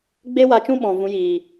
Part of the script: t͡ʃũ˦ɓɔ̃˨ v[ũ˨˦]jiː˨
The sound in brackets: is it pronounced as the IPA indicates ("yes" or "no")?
yes